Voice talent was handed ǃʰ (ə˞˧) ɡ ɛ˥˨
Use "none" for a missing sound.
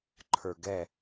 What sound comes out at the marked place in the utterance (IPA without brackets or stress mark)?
ə˞˧